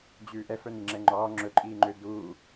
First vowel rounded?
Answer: yes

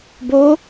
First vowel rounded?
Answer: yes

